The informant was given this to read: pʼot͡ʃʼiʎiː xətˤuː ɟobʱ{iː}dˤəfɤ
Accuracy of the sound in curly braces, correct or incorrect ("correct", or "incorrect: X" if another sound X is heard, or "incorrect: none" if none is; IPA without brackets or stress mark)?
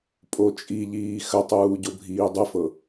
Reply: correct